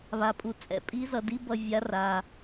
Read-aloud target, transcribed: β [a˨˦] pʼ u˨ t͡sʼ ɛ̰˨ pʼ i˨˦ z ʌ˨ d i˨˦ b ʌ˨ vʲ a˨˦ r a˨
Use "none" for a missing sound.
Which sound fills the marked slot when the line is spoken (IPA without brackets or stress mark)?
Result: a˨